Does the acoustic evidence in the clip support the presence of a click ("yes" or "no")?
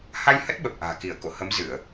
no